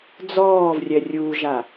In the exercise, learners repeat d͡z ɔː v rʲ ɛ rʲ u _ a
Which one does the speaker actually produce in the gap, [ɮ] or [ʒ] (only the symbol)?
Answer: ʒ